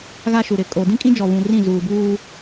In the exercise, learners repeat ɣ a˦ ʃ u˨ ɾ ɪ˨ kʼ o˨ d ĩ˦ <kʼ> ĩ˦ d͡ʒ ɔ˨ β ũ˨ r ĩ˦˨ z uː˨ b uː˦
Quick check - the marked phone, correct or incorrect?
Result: correct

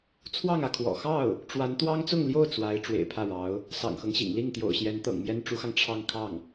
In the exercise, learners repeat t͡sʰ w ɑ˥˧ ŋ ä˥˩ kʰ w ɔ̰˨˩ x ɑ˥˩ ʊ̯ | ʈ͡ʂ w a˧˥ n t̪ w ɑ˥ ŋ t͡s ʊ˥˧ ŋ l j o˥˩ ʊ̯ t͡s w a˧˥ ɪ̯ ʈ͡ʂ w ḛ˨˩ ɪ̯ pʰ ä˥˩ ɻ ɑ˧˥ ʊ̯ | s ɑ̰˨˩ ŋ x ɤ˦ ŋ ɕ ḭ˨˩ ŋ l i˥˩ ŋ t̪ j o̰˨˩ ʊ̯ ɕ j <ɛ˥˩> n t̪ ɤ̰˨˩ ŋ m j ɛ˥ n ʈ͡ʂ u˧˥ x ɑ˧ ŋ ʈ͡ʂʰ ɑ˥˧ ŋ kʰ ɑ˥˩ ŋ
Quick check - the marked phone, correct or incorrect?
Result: incorrect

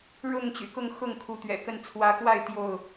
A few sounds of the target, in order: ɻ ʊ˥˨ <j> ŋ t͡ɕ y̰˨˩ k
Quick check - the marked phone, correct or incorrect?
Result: incorrect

